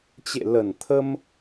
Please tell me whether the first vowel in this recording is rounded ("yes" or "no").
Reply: no